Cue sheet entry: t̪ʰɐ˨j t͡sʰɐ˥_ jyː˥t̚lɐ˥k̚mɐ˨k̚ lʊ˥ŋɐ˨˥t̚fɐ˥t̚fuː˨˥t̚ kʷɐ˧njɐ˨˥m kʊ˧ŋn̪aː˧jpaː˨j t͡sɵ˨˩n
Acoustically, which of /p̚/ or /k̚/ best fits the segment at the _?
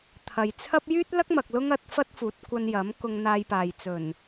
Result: p̚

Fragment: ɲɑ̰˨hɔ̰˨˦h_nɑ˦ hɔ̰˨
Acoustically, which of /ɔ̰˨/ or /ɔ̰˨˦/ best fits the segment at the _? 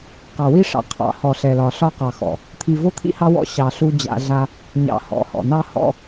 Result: ɔ̰˨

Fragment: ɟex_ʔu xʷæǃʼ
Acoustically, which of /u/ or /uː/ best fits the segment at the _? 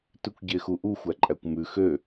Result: u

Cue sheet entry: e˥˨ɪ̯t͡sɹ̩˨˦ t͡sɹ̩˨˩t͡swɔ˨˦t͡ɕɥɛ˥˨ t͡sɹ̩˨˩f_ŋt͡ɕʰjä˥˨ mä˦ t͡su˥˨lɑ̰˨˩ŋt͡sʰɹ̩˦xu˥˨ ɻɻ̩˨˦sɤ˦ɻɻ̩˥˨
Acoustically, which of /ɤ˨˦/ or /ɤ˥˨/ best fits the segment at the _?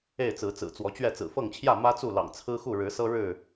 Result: ɤ˥˨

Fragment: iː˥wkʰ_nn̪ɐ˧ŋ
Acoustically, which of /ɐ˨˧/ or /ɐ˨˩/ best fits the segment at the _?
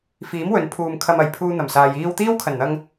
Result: ɐ˨˩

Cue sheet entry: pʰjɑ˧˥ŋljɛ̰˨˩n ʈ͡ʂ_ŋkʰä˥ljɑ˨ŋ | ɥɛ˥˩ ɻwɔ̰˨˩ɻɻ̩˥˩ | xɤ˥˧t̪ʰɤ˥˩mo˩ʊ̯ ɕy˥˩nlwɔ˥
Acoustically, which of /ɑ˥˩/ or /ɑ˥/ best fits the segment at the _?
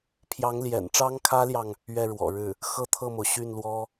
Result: ɑ˥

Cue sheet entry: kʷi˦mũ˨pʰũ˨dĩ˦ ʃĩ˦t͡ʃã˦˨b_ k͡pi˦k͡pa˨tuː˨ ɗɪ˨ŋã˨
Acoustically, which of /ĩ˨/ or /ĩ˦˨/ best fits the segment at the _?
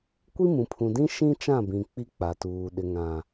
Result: ĩ˨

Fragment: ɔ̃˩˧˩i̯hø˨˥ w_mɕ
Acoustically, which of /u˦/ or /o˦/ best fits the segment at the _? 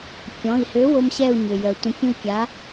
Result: o˦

